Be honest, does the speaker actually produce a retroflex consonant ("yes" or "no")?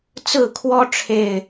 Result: yes